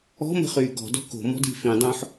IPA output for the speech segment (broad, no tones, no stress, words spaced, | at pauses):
ɔ̤mə̤χyː ɡɔ̤dɔ̤ ko̤mɔ̤d i̤ fĩdˤõːħ